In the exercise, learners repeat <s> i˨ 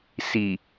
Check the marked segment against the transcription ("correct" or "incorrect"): correct